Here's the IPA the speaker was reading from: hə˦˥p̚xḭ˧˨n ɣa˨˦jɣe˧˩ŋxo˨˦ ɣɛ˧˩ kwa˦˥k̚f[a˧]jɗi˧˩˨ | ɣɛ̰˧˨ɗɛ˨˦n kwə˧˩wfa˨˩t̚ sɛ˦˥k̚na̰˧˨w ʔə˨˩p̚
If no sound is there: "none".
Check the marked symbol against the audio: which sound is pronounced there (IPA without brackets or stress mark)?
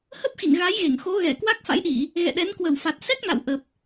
a̰˧˥